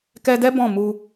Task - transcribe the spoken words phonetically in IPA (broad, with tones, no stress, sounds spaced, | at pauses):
k ɛ˧ d ɛ˦ b ɔ̃˦˨ m u˧